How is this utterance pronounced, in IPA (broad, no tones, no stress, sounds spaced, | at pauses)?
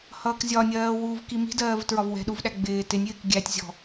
h ʌː k zʲ ɒ nʲ ɜː w uː v k i m i̤ d ɜː v t ɹ ɒ v w ɛ̤ ɗ u v ɗ æ ɡ͡b ɪː t ɪ nʲ ɪː k ɡʲ æ tʲ zʲ ɔ̤